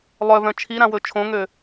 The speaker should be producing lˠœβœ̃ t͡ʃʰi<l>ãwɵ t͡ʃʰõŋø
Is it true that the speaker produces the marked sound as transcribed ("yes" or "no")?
no